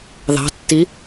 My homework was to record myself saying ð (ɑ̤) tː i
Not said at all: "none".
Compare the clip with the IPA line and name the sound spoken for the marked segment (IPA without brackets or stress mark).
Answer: ɑ̤